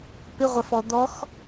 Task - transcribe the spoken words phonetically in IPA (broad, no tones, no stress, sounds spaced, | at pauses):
p ɪ ʁʷ a f ɔ d̪ ɔ x